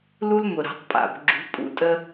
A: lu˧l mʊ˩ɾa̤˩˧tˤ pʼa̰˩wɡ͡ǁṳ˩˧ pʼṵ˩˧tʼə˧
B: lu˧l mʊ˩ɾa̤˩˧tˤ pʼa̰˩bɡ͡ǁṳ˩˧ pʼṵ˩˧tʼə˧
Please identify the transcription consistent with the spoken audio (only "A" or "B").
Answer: B